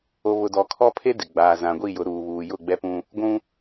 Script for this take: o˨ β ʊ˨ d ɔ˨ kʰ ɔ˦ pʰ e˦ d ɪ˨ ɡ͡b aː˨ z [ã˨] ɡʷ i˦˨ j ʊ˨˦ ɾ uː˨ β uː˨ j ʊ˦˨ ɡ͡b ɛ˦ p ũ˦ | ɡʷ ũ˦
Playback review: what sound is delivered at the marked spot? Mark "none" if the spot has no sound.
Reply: ã˨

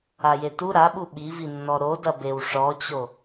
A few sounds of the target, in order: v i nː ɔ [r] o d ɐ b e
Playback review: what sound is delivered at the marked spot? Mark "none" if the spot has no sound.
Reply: ɾ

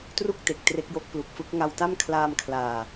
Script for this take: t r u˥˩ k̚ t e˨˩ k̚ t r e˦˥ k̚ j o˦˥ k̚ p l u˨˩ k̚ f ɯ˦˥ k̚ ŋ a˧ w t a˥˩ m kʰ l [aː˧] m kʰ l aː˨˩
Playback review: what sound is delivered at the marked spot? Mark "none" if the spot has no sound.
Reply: aː˧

